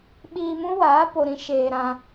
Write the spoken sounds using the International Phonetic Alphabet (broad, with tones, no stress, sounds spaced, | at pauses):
ɓ iː˧ m ũ˦ w aː˨˦ p o˧ ɾ ĩ˦ ʃ eː˧ ɾ ã˧